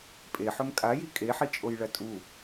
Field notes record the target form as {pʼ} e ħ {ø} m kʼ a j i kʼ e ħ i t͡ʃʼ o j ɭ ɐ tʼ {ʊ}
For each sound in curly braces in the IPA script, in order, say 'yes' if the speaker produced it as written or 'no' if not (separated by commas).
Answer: yes, no, no